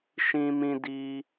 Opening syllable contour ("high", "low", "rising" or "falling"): high